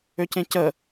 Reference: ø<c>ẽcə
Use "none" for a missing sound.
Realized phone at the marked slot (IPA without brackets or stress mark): c